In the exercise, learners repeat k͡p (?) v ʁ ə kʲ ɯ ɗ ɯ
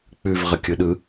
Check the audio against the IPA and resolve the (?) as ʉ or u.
ʉ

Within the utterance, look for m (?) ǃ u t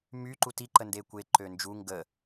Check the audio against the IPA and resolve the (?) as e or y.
y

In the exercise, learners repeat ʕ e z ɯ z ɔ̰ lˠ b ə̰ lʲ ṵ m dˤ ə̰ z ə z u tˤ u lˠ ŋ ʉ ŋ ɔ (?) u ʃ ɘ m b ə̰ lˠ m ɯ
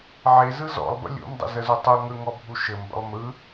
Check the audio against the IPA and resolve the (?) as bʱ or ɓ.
bʱ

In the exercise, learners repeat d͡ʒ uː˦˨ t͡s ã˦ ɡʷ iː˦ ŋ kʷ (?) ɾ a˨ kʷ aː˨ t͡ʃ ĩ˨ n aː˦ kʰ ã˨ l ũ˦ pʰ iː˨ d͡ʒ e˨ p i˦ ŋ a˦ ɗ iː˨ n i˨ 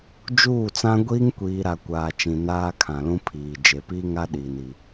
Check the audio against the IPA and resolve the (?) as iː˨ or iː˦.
iː˨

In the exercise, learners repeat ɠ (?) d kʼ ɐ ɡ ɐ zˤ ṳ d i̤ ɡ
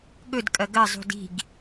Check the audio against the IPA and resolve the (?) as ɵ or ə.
ɵ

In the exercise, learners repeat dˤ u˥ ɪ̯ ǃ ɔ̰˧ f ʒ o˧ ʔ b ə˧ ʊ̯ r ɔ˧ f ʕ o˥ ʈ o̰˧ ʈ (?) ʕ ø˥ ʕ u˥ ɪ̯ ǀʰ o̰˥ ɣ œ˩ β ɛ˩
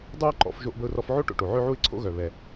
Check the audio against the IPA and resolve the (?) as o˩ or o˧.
o˩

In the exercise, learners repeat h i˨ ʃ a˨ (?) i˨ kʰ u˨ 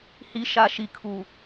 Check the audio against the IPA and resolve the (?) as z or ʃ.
ʃ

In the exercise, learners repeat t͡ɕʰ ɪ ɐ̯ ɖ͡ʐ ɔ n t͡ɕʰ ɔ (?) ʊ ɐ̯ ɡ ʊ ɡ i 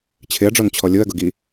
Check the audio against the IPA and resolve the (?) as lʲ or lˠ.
lʲ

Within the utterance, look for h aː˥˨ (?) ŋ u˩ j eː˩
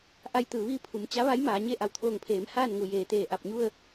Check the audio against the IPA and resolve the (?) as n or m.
n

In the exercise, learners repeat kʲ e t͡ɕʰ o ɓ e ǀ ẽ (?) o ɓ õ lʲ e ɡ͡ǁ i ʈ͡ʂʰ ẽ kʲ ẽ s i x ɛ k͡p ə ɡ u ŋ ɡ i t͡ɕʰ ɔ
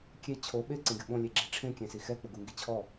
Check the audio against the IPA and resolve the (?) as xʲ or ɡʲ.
ɡʲ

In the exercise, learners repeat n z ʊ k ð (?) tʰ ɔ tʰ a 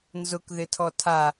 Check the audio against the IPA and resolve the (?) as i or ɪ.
ɪ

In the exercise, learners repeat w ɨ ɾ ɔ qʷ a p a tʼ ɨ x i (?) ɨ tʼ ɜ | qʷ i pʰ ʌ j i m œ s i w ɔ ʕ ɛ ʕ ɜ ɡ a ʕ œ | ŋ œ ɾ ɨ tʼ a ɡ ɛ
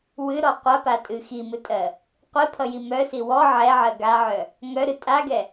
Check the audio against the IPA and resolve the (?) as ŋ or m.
m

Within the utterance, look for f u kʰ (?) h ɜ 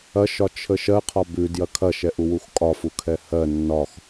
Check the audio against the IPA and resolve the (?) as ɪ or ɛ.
ɛ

